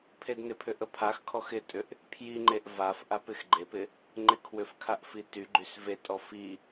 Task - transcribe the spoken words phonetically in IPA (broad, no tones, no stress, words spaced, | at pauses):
pʰednɪpʰʏ ʔəpʰaxkʰɔx ɪtʼʏʔ | pʰjiŋ͡ǃeʔ vaf ʔapɪxɡ͡ǃepɪ | ŋ͡ǃɪkʰwʏfkʰaʔ fityɡ͡ǃys vetʼɔ fi